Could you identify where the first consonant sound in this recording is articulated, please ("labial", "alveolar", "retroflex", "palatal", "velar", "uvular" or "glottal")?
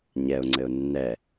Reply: palatal